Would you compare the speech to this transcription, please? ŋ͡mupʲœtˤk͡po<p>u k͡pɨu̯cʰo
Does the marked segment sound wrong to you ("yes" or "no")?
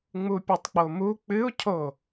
yes